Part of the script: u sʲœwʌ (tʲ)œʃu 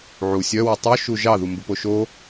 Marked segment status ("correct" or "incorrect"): incorrect